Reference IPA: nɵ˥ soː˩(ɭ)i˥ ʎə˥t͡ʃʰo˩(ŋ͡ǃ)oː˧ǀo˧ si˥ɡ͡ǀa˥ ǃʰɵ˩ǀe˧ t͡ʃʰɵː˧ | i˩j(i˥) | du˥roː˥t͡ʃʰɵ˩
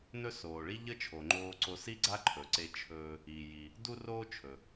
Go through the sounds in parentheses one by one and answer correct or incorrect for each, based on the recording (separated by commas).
correct, correct, incorrect